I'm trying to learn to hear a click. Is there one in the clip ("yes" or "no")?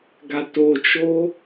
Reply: no